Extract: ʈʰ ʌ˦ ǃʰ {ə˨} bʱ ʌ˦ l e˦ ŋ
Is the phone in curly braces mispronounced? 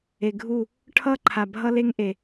yes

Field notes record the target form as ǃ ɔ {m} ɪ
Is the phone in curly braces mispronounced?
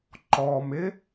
no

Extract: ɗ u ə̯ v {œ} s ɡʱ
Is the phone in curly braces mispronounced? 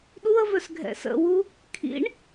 no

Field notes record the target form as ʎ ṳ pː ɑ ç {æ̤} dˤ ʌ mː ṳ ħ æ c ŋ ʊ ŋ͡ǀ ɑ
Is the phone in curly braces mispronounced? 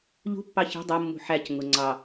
no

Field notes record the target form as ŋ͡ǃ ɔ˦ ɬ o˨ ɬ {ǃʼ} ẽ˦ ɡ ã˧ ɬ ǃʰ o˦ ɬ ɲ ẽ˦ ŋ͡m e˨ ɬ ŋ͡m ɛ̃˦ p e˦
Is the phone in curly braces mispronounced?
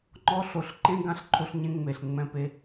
yes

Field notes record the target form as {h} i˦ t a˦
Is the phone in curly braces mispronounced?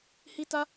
no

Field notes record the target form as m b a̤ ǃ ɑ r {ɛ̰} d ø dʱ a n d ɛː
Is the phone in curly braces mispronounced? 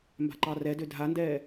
yes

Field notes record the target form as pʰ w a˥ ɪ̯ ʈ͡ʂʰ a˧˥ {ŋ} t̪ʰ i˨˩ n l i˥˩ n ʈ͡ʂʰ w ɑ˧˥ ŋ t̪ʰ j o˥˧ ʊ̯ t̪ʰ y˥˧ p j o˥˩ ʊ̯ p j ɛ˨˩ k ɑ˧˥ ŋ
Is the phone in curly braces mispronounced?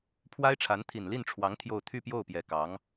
yes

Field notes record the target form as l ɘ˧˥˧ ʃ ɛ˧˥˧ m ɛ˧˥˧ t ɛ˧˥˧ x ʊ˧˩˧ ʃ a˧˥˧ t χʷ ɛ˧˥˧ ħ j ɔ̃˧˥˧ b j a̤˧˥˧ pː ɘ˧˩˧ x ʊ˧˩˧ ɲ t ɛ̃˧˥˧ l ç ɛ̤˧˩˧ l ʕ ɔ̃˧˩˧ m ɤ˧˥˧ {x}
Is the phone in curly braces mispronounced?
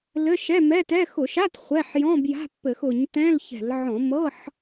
yes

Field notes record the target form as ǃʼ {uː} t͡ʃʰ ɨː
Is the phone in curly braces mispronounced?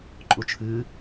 yes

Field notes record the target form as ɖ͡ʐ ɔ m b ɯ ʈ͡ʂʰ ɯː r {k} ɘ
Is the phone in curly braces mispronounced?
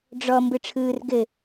yes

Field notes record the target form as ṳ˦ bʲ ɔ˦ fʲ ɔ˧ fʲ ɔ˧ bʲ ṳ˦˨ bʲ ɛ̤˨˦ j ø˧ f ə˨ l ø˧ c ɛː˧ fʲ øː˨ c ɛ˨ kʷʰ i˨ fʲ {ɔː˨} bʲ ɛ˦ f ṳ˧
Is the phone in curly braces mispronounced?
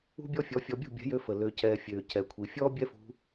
yes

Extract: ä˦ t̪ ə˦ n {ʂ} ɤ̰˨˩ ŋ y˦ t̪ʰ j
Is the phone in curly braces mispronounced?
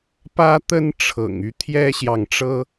yes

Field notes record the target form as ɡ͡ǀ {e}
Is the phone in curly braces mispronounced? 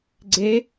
no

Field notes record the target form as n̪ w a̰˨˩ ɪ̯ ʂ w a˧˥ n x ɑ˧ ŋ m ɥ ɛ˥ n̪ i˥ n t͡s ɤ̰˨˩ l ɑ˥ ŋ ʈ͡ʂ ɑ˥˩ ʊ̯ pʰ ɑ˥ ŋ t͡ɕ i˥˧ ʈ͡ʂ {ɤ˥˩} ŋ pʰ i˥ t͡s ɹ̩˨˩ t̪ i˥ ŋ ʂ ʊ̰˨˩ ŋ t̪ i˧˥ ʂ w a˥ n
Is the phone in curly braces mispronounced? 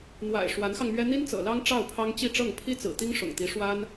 no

